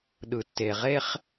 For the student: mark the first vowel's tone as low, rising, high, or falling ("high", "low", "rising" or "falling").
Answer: low